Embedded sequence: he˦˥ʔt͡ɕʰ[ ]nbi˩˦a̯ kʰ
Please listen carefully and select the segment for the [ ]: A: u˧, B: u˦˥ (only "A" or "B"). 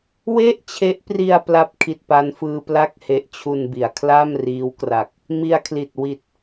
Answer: A